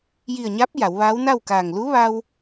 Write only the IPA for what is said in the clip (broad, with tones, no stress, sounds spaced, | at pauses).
j i˧˩ ə̯ ɲ a˧˥ p̚ j a˩˧ w ʋ aː˧˥ w n a˥˨ w k aː˧˩ ŋ l u˧˥ ʋ a˧ w